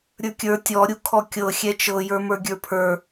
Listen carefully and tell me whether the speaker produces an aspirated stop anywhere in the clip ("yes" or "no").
yes